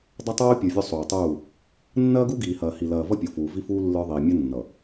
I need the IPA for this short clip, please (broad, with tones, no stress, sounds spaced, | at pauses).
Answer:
dˤ ɐ˦ tˤ oː˦ pʲ ə˞˨ vʲ o˦ sˤ oː˨ tˤ uː˦˨ | nː ɐː˦ ɡ u˦ ɡ iː˨ h ɐː˨ h i˨ l ɐː˨ v ʌ˦ pʲ o˨ f uː˨ v i˦ f uː˦ lː ə˞˦ ðˤ iː˨ mʲ ɐ˦ nː ʌ˨